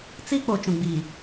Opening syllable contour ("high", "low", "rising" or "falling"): high